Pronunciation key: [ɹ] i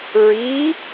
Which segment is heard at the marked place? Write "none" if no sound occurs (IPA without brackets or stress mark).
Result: ɹ